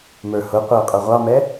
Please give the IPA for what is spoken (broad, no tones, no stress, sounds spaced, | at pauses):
m ə˞ h ʊ qʷ əː qʼ ʊ ʁʷ ɑ m ɛ